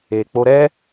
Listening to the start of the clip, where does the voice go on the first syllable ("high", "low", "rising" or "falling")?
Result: low